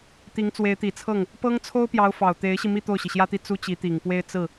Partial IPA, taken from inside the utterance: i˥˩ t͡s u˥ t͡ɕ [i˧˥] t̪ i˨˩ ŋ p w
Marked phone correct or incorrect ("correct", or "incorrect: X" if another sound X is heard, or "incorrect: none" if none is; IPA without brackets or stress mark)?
correct